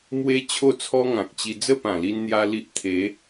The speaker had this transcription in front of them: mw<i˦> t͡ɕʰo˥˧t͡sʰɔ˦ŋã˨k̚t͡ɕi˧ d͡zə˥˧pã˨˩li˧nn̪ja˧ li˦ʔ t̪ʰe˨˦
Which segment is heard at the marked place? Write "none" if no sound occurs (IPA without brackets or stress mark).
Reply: e˦